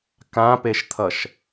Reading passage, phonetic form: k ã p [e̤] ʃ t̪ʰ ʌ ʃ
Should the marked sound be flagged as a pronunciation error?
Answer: yes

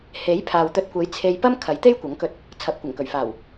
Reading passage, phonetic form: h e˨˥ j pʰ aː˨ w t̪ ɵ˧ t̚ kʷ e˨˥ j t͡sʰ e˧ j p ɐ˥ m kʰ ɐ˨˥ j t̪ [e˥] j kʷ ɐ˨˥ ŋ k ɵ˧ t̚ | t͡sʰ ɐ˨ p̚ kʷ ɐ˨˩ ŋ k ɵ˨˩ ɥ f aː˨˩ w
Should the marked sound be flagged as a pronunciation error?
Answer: no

